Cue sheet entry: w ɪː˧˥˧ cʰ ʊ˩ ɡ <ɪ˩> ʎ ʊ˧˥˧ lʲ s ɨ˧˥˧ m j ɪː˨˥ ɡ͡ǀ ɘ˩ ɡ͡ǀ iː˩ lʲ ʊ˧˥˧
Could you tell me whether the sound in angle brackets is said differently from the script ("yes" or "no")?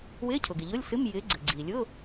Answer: no